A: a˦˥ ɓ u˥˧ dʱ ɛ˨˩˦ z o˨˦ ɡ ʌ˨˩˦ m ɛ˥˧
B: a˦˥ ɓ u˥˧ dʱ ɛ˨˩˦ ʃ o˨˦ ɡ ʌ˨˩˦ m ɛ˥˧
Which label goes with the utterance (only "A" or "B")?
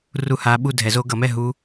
A